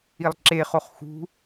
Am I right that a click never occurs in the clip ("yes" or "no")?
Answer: no